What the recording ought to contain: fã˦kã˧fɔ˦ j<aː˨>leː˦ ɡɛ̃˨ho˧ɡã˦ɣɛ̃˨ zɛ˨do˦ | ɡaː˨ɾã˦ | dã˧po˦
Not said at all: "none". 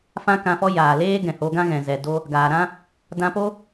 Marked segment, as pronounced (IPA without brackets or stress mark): aː˨